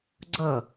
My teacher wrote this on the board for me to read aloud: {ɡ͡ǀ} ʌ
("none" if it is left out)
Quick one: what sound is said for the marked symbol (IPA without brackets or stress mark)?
ɡ͡ǀ